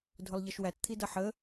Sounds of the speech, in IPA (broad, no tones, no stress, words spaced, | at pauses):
dʱʊlˠʎʌʃwæt t̪ʰidʌħə